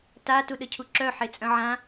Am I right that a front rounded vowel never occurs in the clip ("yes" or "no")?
no